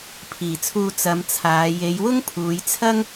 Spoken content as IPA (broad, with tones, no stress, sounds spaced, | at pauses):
pʰ iː˨˩ t͡sʰ uː˧ t͡s ɐ˨˧ m t͡sʰ aː˨˧ j e˨˧ j w ʊ˥ ŋ pʰ uː˨˧ j t͡sʰ ɐ˥ ŋ